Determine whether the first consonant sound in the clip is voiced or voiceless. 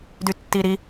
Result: voiced